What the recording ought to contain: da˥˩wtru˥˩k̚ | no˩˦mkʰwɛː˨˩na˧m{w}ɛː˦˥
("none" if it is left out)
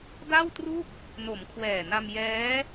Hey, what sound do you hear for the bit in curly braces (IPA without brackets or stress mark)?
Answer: j